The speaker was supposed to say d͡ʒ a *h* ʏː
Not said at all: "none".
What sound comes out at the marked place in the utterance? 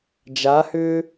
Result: h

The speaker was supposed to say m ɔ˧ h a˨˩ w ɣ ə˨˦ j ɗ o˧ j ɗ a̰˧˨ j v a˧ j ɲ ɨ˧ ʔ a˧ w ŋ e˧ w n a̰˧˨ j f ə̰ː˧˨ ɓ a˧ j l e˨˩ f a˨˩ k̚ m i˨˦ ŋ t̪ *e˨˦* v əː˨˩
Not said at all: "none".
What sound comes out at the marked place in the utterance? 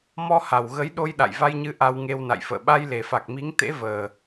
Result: ḛ˧˥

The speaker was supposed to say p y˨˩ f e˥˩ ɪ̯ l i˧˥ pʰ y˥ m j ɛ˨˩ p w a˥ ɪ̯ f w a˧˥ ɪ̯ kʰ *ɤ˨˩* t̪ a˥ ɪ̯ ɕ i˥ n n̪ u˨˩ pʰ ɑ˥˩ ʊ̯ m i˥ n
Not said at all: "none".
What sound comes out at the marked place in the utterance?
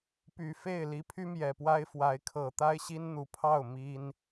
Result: ɤ˨˩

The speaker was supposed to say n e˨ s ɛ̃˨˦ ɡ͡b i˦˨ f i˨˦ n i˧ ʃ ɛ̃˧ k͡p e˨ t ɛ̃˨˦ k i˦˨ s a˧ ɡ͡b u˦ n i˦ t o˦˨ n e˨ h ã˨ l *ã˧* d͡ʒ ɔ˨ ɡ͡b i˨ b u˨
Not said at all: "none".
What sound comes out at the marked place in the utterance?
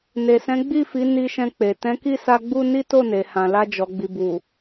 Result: a˧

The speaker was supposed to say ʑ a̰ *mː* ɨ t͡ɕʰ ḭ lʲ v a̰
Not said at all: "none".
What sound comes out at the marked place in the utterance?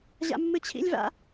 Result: mː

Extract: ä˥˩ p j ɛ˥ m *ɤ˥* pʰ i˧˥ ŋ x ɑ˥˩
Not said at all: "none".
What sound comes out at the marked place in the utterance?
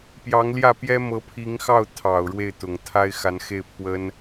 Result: ɤ˧˥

